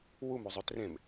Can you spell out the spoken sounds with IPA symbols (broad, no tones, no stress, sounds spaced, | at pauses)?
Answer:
w u m u zˤ ø t r ẽ m